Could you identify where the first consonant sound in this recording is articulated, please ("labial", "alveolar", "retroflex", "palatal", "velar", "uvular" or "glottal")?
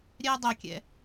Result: alveolar